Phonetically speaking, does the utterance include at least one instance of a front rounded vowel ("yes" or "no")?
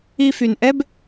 yes